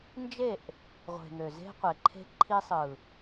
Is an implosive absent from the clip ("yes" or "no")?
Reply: yes